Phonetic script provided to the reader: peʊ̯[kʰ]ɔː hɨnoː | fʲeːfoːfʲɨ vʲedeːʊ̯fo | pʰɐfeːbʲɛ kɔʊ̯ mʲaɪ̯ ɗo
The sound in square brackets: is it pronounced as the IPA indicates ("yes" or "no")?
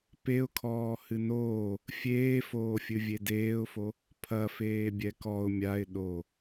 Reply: yes